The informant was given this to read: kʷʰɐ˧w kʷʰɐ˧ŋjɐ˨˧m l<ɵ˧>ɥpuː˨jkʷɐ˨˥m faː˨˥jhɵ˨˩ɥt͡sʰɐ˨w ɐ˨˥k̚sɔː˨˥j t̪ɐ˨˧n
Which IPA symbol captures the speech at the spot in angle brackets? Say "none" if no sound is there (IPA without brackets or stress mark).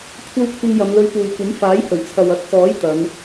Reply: ɵ˧